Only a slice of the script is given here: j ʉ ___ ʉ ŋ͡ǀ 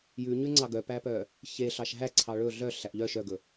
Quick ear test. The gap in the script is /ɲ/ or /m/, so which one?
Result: ɲ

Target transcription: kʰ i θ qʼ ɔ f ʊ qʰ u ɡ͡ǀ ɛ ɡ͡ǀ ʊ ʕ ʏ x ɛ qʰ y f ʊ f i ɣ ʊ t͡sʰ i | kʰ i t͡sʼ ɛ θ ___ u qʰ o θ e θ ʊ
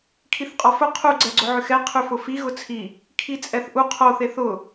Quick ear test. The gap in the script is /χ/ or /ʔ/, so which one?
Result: ʔ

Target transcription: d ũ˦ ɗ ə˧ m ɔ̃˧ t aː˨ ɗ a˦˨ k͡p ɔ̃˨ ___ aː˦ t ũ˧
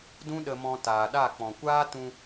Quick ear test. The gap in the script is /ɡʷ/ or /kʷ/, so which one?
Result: kʷ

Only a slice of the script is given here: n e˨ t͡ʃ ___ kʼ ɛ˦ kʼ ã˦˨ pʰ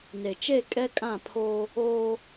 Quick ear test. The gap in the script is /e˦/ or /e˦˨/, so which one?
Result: e˦˨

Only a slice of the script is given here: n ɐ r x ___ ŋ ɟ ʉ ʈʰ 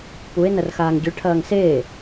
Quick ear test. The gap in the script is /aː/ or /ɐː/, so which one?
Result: aː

